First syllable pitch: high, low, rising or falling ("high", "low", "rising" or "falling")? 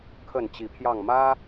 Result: falling